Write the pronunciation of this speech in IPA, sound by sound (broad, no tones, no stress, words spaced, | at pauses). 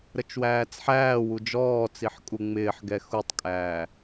ɾət͡ʃwæːt͡sħæːwu d͡ʒɔːt͡siħ kʼuŋ͡mɪːħɡɛ xutˤkʼæː